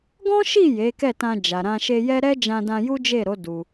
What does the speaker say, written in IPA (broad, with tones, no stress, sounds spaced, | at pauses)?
ɡ ɔ̃˦ ʃ i˦˨ j e˨˦ k ɛ˦˨ t ã˧ d͡ʒ a˨ ɾ ã˧ ʃ e˧ j ɛ˦ ɾ ɛ˦ d͡ʒ ã˧ d ã˧ j u˦ d͡ʒ e˦˨ ɾ o˨˦ d u˧